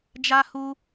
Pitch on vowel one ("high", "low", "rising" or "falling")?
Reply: high